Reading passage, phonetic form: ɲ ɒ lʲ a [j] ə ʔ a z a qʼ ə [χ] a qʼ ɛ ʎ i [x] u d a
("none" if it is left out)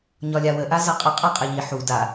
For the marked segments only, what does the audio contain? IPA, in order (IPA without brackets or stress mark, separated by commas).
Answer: w, qʼ, ħ